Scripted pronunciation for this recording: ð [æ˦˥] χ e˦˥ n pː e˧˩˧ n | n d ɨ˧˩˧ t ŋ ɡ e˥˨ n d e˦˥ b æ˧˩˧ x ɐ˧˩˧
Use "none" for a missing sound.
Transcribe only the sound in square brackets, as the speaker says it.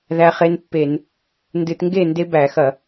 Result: æ˦˥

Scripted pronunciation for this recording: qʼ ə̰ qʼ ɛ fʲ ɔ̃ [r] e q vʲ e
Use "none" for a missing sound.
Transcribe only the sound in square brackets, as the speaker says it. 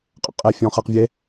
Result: χ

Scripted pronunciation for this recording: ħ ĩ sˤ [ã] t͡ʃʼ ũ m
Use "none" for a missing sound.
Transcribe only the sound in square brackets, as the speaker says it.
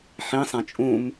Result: ã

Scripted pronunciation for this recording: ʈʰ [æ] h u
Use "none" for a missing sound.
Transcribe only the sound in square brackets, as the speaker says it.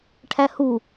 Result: æ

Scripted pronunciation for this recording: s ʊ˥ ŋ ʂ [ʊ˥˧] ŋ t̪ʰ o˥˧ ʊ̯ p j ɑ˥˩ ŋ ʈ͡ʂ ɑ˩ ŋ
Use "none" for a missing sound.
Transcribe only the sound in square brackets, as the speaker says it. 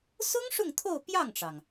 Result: ʊ˥˧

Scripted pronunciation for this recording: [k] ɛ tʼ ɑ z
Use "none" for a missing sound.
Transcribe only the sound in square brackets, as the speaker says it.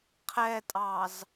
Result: qʰ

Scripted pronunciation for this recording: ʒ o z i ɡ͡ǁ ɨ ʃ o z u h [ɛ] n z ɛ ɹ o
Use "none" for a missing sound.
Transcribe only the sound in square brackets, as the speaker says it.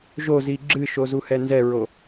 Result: ɛ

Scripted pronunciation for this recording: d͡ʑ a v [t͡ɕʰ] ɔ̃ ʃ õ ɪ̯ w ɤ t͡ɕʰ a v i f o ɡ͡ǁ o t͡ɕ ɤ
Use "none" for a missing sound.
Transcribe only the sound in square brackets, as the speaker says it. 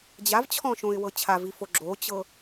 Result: t͡ɕʰ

